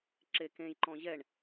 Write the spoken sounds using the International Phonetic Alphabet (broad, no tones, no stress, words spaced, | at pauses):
ǁekẽjǃɔ̃ ʑɛɳ